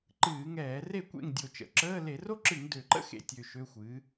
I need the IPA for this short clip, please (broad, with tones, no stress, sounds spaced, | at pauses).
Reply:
ǃ ɨː˧˩˧ ŋ ɛː˧˩˧ r e˥˩ kʷ ḛ˥˩ ŋ dʲ o˨˩ t͡ʃ ə̰˨˩ ǁ əː˧˥˧ l e˧˩˧ r o˥ ǁ ɨ˧˩˧ ŋ d ø˨˩ ǃ ə̰˥ x ḛ˨˩ tʲ ø˨˩ ʃ ø˧˥˧ xʷ ɨ˩˥